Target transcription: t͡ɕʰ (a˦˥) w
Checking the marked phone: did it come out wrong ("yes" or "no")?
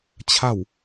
yes